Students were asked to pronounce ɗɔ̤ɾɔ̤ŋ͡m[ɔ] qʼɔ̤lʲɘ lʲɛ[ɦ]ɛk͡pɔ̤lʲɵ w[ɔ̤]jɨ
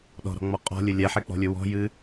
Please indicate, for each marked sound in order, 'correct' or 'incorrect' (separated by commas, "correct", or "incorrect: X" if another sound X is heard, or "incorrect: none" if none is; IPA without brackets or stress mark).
correct, incorrect: ħ, correct